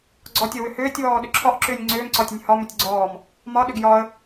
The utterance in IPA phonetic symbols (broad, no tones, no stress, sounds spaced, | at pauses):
ɡ͡ǀ ɔ tʲ ɤ w ʏ h ʏː tʲ w ɔː ɗ ʏ ǁʰ ɒ ʔ ǁ ʏː nʲ ŋ͡ǀ ʏː m ǀ ɒ tʲ ə nʲ h ɒ m ʏ tʲ ɡ͡ǀ ɔː m | m ɒ ɗ ʏ ɡ j ɒ ə̯